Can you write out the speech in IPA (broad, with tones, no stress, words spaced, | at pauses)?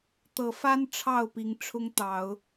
t̪ɤ˨˦fa˦n ʈ͡ʂʰɑ˥˨ʊ̯pi˨˦ŋ ʈ͡ʂʰʊ˦ŋt̪ɑ˨˦ʊ̯